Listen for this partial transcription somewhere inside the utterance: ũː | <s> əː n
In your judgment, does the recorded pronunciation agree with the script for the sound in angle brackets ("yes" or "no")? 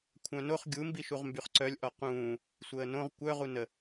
no